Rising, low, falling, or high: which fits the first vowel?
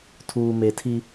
low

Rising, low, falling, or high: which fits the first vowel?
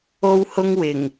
high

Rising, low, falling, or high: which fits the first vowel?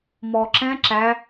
low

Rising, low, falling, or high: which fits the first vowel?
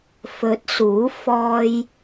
rising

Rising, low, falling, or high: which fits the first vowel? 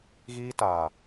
high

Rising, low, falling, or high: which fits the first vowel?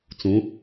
rising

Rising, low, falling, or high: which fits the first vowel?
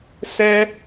high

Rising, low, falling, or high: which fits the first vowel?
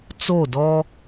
falling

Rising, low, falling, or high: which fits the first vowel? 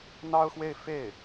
high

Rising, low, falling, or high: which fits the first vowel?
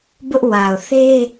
high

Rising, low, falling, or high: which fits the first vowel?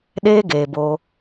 high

